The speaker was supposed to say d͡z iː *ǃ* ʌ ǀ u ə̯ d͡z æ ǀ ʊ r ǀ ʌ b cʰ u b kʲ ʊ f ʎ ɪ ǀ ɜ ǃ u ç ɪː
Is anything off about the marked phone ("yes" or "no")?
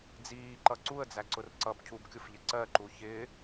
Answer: no